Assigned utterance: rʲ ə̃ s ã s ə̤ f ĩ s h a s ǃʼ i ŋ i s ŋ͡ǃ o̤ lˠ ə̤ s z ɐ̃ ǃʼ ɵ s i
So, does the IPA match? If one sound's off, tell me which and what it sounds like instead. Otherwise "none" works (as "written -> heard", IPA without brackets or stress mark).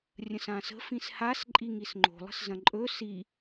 none